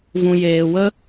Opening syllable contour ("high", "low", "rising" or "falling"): low